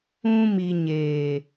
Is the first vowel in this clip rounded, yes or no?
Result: yes